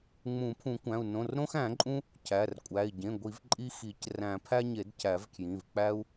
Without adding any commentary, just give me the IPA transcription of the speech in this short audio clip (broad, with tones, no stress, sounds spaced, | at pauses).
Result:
ŋ͡m ũ˨˩˦ pʰ ũ˨˩˦ kʷ æ̃˩˧˩ u̯ n õ˩˧˩ r ɾ õ˦ x æ̃˨˩˦ ǃʼ ũ˦ | cʰ æ˩˧˩ r kʷʼ æ˩˧˩ i̯ ɟ ẽ˩˧˩ ɡʷ i˨˩˦ v ǃʼ i˦ x i˨˩˦ c r æ̃˨˩˦ pʰ æ˦ ɲ e˨˩˦ d cʰ æ˨˩˦ v kʰ j ĩ˩˧˩ v k͡p æ˦ u̯